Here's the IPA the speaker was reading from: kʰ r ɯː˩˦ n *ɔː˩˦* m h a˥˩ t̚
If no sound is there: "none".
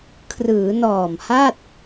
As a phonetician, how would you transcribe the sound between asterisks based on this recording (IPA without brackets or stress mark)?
ɔː˨˩